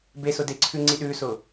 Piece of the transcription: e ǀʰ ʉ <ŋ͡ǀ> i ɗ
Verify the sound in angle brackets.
correct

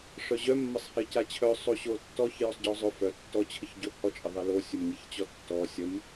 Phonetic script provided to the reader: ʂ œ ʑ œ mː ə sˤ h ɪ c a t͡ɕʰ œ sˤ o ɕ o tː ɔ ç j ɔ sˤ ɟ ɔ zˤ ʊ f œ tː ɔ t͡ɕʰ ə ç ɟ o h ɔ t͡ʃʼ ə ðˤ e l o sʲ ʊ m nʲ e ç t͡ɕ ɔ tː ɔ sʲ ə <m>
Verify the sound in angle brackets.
correct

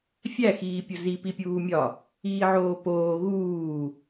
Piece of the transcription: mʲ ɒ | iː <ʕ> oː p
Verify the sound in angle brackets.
correct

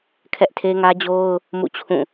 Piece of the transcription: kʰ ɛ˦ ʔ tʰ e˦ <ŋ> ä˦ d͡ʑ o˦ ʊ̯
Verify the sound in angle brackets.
correct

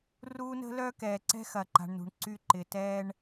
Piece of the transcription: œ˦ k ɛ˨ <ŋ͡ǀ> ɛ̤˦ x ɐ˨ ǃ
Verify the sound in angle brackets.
incorrect: ǀ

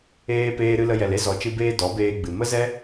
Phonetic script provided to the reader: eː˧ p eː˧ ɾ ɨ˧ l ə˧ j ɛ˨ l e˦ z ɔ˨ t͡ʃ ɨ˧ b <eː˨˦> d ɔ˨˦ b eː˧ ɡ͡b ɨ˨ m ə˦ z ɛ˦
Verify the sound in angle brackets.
incorrect: eː˧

